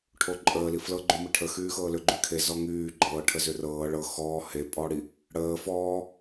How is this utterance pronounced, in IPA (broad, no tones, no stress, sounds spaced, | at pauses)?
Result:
ʈʰ o ǃʼ əː l i f l ɤ ɡ͡ǃ y m i ʈʰ ə x yː x ɤː l ʏ ɡ͡ǃ y kʰ e z ɔ ŋ yː ɡ͡ǃ ɤː ʈʰ ə z ʏ r ɤː ɭ ɤ x ɔː h e pʼ ɔː ɽ i | ɽ əː f ɔː